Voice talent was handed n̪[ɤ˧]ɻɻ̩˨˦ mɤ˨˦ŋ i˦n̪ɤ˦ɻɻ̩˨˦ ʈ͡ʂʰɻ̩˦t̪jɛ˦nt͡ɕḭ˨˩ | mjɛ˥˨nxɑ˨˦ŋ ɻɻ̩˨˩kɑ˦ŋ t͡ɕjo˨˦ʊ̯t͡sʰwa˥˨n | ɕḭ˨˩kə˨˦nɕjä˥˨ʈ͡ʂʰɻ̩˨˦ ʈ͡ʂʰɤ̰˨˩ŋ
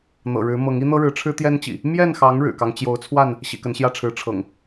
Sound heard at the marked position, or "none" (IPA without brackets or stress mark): ɤ̰˨˩